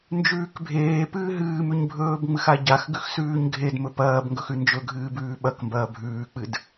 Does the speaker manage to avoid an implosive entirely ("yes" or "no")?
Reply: no